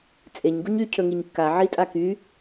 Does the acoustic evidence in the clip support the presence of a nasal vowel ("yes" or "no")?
no